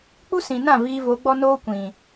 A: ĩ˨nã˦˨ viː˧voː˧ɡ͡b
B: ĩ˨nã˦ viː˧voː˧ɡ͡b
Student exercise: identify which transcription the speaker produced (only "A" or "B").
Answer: A